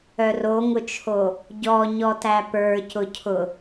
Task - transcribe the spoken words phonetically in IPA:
œ r o ŋ ʊ t͡ʃʰ o | ɟ ɔ ɲ ɔ t æ p ə˞ c ʊ cʰ ʊ

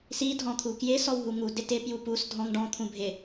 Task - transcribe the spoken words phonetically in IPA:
s i dʱ ɔ̃ t̪ʰ u k j ɪ s ɔ w ɦ u ŋ u d ɪ t ɪ p j u p u s dʱ ɔ̃ ŋ ɖ ɔ̃ t̪ʰ ũ bʱ ɪ

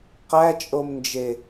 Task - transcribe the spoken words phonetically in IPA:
q æ t͡ʃʼ o m n d͡ʒ e

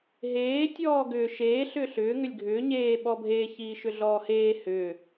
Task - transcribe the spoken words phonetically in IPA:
ɦ eː tʲ ɔː ɡ ʏː ʃ eː ɬ ʏː ɬ ʏː ŋ ʏ lʲ ɡʱ ʏː ɲ eː ɓ ɔ bʱ e ç iː ʃ ʏ ɮ ɔː h eː h ʏː

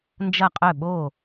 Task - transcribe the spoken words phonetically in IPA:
n d͡ʒ ɐ˥˩ qʼ œ˥˩ ɓ o˥˩

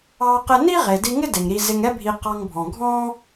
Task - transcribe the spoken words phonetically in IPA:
ɑ˧ q ɪ˧ n i˥ ʁ e˩ d i˧ ŋ ɪ˥ d e˩ ŋ ɾ i˧ z ɪ˧ ŋ ɛ˥ bʱ i˧ q ɑ˧ ŋ bʱ ɔ̃˩ ɡʱ ɔ̃˥

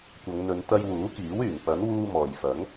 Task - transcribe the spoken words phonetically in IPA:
kʷ ɐ˨˧ ŋ n̪ ɵ˨˧ n t̪ ɐ˧ j w uː˨˥ k iː˨˥ w yː˨˩ ŋ p ɐ˨˥ n w uː˧ m ɔː˨ j f ɐ˨˥ ŋ

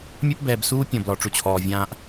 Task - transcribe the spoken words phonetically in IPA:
mʲ ɛ˦ p b ɛː˨ b s uː˦ pʲ ɔ̃˨ b l ɔ˨ ʈ͡ʂ u˨ t͡ɕʰ ɔː˨ vʲ ãː˦ ʔ

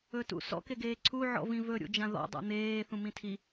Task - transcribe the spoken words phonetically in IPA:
ɵ t ṵ s ɔ̰ k e ɡ eː ǀʰ u ʕ ɔ̰ v ĩ v ɵ ɾʲ ṵ d͡ʒ ã ð ɔ̰ dˤ ṵ n̪ eː θ ũ m ĩ tʰ i

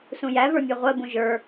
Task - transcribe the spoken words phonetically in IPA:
s ũ j æ v ə˞ mʲ ɜ ʁʷ ɜ b ũ ʒ ə˞

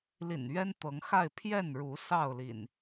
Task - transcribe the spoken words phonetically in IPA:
l ḭ˨˩ n ɥ ɛ˦ n t̪ ɤ˨˦ ŋ x a˥˨ ɪ̯ pʰ j ɛ˥˨ n ɻ u˨˦ s ɑ˥˨ ʊ̯ l ḭ˨˩ n

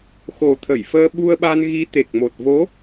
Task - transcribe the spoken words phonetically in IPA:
x o˨˩ t̪ʰ ə˧˩ j f əː˧ ɓ u˧ ə̯ ɓ a˧ n ɣ i˨˦ t̪ e˨˩ k̚ m o˨˩ t̚ v o˨˦

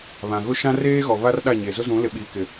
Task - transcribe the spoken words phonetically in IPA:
β ã˨ ɣ ʊ˦ ʃ ã˦ r eː˦ ɣ ɔ˨ β a˦ r ɗ a˦˨ ɲ e˨ z ʊ˦ z ũ˨˦ l ɪ˨ ɓ iː˨ k ɪ˨

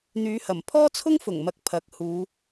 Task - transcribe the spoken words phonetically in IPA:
n̪ yː˨˧ h ɐ˨˩ m pʰ ɔː˥ t͡sʰ ʊ˥ ŋ f ʊ˨˩ ŋ m ɐ˨ k̚ pʰ ɐ˨˥ k̚ h uː˨˧

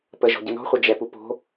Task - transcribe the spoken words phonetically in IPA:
p ə ʒ ɔ̤ ɟ ə n ɔ̤ χʷ ɐ d͡ʒ ɛ p u p o̤

